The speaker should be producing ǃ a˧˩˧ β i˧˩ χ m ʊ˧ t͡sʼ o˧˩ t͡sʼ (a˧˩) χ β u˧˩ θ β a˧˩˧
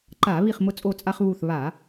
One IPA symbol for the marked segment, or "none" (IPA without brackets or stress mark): a˧